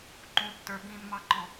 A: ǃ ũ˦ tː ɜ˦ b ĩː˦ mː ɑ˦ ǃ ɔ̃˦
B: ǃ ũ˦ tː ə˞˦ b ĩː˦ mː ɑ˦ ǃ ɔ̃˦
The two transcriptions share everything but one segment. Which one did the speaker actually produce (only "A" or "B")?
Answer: B